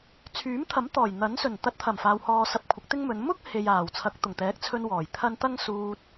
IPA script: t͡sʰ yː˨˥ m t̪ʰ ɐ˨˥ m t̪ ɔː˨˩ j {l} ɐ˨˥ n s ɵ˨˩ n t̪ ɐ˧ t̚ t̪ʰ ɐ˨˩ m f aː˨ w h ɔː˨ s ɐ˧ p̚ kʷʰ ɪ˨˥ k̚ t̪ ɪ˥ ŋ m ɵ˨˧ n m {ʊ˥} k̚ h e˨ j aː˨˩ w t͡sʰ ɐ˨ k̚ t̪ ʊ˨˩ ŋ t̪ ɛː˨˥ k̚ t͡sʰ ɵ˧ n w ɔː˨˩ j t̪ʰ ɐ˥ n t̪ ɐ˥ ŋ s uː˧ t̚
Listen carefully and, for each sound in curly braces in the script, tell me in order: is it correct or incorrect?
incorrect, correct

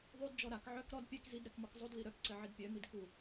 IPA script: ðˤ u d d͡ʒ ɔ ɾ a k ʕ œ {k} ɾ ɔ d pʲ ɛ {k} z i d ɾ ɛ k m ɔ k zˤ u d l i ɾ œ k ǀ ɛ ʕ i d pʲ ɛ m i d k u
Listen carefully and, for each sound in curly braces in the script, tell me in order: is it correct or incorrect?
correct, correct

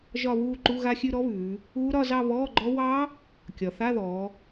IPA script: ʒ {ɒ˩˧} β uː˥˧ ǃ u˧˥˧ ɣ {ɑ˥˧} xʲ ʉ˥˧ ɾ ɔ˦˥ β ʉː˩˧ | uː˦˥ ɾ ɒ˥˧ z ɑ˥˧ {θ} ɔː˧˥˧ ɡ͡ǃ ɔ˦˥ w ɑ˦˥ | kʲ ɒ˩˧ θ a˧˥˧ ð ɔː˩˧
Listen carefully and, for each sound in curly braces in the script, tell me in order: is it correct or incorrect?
incorrect, incorrect, incorrect

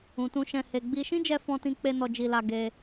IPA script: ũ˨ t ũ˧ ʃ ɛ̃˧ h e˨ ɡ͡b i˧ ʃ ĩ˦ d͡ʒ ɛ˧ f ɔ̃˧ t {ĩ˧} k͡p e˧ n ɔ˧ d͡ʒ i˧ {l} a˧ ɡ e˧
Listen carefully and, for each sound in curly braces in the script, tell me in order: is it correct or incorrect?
correct, correct

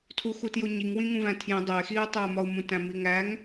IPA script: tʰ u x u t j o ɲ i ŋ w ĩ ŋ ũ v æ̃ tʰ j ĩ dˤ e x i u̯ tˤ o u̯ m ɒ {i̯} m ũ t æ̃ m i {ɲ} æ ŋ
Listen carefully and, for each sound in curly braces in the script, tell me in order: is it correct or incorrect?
incorrect, incorrect

